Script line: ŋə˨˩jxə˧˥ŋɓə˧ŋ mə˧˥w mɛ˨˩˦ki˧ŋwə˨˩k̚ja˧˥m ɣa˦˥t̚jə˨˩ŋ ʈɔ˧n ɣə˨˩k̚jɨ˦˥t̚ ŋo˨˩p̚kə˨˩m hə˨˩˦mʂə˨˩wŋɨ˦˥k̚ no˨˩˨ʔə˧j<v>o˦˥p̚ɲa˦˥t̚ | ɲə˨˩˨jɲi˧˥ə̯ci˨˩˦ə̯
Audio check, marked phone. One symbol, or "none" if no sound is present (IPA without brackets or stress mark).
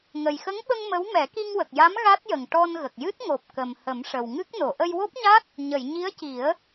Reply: w